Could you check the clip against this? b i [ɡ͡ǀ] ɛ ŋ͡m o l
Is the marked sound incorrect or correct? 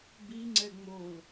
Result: incorrect